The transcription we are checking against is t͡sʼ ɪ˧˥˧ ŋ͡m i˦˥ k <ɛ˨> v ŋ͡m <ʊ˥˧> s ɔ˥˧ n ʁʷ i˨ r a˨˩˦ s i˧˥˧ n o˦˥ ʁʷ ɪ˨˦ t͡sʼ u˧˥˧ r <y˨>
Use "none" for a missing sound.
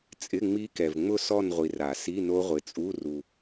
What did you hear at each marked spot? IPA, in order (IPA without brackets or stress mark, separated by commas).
ɛ˨, ʊ˥˧, u˨